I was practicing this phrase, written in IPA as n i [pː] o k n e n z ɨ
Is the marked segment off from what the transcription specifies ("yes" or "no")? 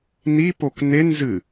yes